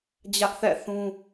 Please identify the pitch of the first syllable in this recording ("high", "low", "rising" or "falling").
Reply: high